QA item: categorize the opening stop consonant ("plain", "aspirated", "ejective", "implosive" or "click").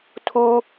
aspirated